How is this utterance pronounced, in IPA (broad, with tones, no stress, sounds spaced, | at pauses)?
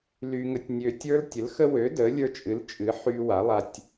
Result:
l y˦ ŋ ə˦ tʲ nʲ ø˦ tʲ ə˞˦ l tʲ ə˨˥ l x ə˦ w ø˨˥ d ə˨˥ lʲ ə˞˦ t͡ʃʼ ɨ˨˥ l t͡ʃʼ ɨ˨˥ ħ y˦ w a˨˥ lˠ a˦ tʲ